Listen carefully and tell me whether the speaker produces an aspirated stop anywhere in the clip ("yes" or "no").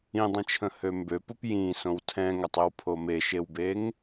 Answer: yes